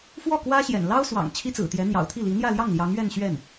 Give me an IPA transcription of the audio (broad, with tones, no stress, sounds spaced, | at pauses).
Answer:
f w ɔ˥˩ k w ä˥ ɕ j ɛ̰˨˩ n l ɑ˥ ʊ̯ s w ɑ̰˨˩ ŋ t͡ɕʰ i˥ t͡s ɹ̩˨˩ t̪ j ɛ˧˥ n̪ j ɑ̰˨˩ ʊ̯ t̪ʰ i˥˩ l i˧˥ n̪ j ä˥˧ l j ɑ˥˩ ŋ l j ɑ˧˥ ŋ ɥ ɛ˥˧ n ɕ ɥ ɛ˥˩ n